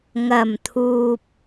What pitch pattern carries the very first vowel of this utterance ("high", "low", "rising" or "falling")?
low